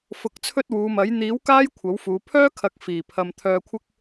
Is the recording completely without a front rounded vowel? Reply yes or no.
no